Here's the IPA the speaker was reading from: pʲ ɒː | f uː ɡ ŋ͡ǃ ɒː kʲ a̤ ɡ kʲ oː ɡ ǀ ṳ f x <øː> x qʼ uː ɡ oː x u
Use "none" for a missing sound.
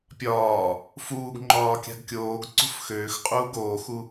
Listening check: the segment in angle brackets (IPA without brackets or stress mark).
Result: øː